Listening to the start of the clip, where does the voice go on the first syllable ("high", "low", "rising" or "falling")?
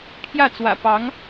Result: falling